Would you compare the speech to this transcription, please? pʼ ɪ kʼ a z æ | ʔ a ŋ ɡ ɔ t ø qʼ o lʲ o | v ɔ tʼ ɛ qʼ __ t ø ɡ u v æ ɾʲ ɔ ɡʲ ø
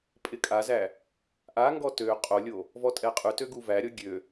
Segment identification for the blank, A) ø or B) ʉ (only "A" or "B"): B